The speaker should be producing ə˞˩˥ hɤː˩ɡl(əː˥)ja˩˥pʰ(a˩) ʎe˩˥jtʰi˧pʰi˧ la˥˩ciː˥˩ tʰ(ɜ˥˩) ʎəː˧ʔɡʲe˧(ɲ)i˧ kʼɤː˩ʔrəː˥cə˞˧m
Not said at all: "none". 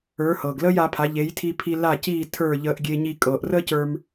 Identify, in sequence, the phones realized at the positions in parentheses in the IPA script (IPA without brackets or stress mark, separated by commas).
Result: əː˥, a˩˥, ə˞˥˩, ɲ